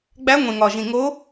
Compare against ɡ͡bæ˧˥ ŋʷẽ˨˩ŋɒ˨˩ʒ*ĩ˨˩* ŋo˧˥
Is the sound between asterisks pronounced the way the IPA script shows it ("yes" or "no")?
yes